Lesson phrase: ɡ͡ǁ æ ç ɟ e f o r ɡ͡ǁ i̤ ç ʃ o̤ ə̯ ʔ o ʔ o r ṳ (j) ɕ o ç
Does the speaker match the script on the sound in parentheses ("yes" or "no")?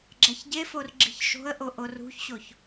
no